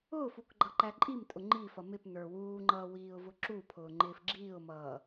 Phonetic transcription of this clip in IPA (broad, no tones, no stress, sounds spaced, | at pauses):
ʊː f u k ɡ͡ǃ ʌ ǃ æ ǃʼ i m tʼ ʊ ŋ͡ǃ i f ʌ m ɪ p n ə˞ w uː ŋ͡ǃ ʌː w iː ʊ̯ v ʊ ǁ u pʰ ʊː ŋ͡ǃ ɪː f ɡ͡ǁ iː ʊ̯ m ʌː